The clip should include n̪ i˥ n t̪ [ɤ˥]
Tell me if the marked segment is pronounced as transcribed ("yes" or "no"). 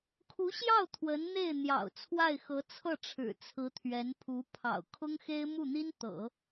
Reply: no